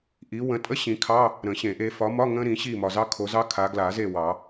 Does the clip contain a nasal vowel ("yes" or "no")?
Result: yes